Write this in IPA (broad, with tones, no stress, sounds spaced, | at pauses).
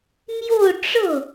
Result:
m j o˥˧ ʊ̯ ʈ͡ʂ ɤ˥˩